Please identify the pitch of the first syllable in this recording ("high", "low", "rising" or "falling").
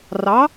rising